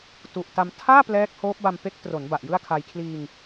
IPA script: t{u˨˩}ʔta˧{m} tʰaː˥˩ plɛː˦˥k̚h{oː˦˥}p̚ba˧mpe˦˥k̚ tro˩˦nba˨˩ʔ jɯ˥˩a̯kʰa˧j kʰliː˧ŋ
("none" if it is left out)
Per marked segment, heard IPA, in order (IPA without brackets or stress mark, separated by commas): u˨˩, m, oː˦˥